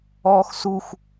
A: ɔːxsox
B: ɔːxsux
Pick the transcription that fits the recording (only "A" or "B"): B